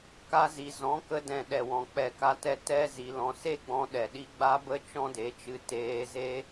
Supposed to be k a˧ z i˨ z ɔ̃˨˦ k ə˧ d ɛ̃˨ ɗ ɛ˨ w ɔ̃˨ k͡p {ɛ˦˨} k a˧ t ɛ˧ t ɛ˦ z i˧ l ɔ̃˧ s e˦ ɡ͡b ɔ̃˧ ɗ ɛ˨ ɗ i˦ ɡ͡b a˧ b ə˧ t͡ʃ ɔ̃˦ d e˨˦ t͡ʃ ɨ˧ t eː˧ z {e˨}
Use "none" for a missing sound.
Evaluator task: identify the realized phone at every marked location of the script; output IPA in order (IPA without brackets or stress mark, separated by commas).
ɛ˨, e˦